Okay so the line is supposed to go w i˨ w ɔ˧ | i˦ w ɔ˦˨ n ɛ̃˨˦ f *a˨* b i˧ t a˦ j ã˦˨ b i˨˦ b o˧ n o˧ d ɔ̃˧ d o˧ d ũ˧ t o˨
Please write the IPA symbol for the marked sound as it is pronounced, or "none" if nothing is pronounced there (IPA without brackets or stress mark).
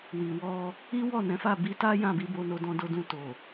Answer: a˦˨